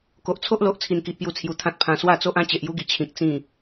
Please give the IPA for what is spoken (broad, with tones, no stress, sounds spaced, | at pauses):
k o˨ ʔ t͡sʰ o˦ ʔ l o˨ ʔ t͡sʰ i˧ n k i˨ ʔ p j u˧ t͡sʰ j u˨˩ t̪ʰ ã˦ t̚ pʰ ã˧ s w a˥˧ t͡s o˦ ʔ ã˦ t͡ɕ e˨ ʔ j u˦ ɡ i˨˩ t͡ɕʰ ĩ˨ k̚ t͡s ĩ˥˧